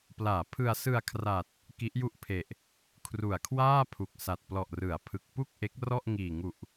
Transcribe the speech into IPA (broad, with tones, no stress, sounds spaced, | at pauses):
p l aː˩˦ pʰ ɯ˧ a̯ s ɯ˧ a̯ kʰ r a˨˩ t̚ | k i˦˥ ʔ j u˥˩ ʔ pʰ e˨˩ ʔ | kʰ r u˨˩ a̯ kʰ w aː˥˩ pʰ u˨˩ k̚ s a˨˩ t̚ p l ɔ˨˩ ʔ r ɯ˩˦ a̯ pʰ ɯ˨˩ k̚ p u˥˩ k̚ ʔ e˦˥ k̚ r ɔ˥˩ ʔ ŋ iː˨˩ ŋ u˨˩ ʔ